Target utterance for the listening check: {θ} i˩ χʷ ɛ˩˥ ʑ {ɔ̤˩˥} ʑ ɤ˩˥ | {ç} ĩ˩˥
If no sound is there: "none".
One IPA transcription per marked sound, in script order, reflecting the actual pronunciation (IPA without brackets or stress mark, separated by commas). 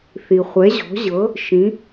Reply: θ, ɔ̤˩˥, ʃ